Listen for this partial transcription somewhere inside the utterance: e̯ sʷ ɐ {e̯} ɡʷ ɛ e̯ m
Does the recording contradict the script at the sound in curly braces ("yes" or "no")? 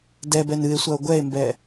yes